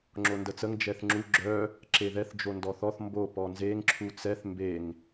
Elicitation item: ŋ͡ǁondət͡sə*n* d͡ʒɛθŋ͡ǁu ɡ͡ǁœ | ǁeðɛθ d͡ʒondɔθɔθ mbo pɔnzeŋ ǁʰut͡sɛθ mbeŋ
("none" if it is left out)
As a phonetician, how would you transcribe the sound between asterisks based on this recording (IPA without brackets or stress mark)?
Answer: ŋ